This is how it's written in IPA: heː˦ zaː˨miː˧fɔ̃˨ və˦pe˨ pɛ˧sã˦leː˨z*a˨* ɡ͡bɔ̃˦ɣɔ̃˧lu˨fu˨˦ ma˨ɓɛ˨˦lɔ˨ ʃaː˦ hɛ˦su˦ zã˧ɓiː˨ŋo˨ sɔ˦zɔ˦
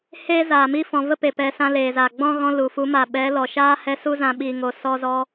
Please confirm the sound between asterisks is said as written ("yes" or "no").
yes